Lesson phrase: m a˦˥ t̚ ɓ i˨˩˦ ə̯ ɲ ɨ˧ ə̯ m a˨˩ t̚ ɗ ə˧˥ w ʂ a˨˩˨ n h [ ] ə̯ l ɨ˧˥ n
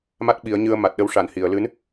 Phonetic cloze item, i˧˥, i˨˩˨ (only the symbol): i˨˩˨